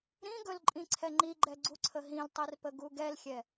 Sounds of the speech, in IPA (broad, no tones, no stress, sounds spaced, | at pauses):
ɾ ĩ ɡ ɵ l ǃʼ ĩ ǀʰ ɛ ŋ͡ǃ i ɡ͡ǃ ɛ ɡ͡ǀ u ǀʰ ə ɦ ĩ l tˤ i r p ə ɡ u ɡ ɛ l xʲ ɛ